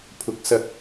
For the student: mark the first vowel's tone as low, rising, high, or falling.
rising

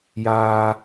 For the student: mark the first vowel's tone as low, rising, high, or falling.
high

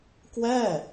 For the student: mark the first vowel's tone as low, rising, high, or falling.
falling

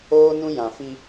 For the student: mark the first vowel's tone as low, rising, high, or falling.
high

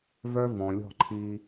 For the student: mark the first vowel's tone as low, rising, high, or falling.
high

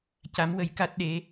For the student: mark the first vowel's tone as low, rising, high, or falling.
rising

